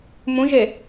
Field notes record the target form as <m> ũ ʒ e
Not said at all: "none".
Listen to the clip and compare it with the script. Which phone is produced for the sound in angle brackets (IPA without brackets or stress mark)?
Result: m